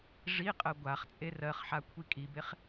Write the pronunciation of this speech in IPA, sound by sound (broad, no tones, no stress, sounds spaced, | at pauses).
ʐ i qʼ ɜ ɡʷ a χ t͡sʼ e r ɜ χ ħ a kʷʰ i kʼ i b e χ